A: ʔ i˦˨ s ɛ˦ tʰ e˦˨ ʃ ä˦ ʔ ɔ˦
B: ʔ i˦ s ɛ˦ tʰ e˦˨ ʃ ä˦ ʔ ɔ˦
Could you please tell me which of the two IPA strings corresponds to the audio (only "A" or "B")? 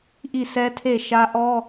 A